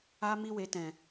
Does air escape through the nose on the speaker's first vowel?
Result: no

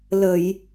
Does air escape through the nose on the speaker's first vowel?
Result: no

